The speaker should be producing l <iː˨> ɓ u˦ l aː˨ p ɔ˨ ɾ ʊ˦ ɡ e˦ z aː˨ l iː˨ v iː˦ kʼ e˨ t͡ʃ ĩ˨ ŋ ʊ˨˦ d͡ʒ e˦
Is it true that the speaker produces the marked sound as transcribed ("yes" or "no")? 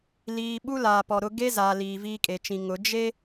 yes